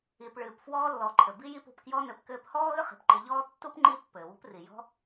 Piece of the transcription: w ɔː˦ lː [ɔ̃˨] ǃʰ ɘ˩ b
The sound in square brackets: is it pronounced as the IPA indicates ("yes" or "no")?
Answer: no